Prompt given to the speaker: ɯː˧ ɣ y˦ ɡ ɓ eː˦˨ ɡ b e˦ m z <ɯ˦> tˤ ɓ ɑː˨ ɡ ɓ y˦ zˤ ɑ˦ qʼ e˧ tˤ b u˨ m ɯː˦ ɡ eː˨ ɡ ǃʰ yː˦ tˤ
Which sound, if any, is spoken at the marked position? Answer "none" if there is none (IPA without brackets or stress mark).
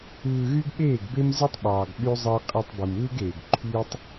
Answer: ɯ˦